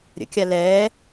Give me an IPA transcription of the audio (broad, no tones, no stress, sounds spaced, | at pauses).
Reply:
ɾʲ ə̰ kʲ a l ɛː